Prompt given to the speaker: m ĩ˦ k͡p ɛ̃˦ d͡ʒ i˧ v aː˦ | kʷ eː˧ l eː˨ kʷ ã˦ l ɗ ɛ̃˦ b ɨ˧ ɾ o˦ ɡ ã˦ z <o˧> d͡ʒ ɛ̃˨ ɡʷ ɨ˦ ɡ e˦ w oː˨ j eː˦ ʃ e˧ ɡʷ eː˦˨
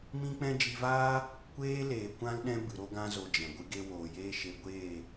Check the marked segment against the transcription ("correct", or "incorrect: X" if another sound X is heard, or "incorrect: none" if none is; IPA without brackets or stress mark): correct